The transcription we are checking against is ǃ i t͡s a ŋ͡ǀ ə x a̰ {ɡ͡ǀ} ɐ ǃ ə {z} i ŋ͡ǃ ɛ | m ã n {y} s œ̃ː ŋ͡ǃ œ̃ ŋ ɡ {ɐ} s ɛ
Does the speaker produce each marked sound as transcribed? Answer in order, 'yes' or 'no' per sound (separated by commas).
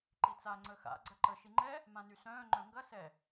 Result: yes, no, yes, yes